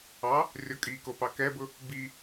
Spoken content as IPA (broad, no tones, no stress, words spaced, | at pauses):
ɑ | rʲɔkʼikopɑ kɛbʊ | bi